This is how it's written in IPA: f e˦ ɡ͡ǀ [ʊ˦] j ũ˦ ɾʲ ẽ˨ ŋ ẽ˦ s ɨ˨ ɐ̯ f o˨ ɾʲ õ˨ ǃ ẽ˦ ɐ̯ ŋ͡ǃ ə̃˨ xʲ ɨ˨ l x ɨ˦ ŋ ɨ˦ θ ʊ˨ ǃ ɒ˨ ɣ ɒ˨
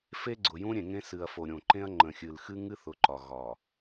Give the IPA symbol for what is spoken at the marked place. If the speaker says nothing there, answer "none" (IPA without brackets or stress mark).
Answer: ʊ˨